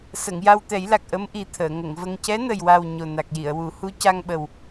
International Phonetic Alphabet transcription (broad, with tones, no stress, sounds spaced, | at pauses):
s ə˨˩˨ ŋ j a˧ w t̪ ɛ˨˩˦ j l a˨˩ k̚ ʔ ə˧˥ m ʔ i˨˩ t̪ʰ əː˨˩˨ ŋ ə˨˩˨ ŋ v ə˧ ŋ c ɛ˧˥ n ə˨˩ j w a˨˩ w ɲ o˨˩ n a˨˩ k̚ j i˨˩˨ ə̯ w u˨˩˦ h u˧˥ c a˧ ŋ ɓ ə˨˩ w